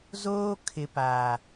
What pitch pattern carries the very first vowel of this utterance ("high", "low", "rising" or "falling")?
high